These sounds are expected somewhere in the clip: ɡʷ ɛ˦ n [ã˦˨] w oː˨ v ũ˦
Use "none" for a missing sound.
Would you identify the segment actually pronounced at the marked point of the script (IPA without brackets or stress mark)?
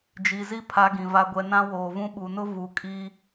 ã˦